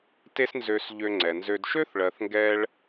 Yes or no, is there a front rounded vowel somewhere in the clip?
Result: yes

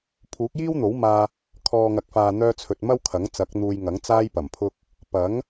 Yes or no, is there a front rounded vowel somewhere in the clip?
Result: yes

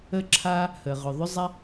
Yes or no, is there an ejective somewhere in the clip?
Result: no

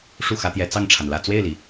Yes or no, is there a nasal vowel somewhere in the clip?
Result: no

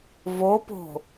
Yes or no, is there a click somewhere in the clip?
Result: no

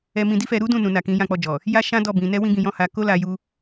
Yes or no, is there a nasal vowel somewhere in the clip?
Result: yes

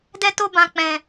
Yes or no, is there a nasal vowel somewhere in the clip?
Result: yes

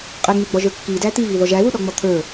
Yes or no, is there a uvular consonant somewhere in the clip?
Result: yes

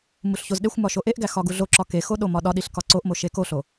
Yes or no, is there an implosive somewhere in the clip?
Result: yes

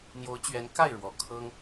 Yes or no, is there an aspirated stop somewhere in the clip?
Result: yes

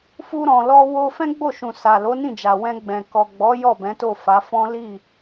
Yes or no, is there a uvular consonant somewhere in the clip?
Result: no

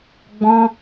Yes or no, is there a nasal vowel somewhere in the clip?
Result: yes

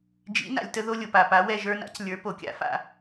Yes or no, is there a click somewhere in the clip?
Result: no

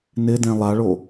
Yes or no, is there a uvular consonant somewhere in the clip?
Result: no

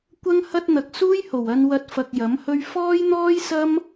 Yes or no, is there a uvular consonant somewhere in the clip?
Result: no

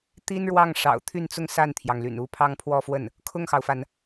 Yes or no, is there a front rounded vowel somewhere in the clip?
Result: yes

